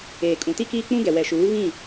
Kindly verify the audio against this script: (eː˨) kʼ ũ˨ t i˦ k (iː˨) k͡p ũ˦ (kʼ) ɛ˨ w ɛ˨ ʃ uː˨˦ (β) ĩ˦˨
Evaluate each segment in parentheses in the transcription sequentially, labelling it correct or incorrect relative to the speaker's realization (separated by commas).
correct, incorrect, incorrect, correct